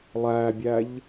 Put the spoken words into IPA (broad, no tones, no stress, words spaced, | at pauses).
lˠæbʲæʎ